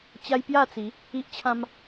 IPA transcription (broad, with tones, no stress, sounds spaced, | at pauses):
t͡ɕ a˦ j p j a˥˧ t͡s i˨˦ | i˦ ʔ t͡ɕʰ ã˦ m